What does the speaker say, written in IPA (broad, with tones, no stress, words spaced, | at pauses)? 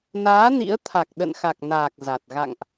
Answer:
naː˨˦ nḭ˧˥ə̯ t̪ʰa˨˩k̚ɗə̰˧˨nxa˨˩k̚ naː˨˩k̚ za˨˩t̚ ɣa̰˧˨ŋʔ